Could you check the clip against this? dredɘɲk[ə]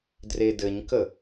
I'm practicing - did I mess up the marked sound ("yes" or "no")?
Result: no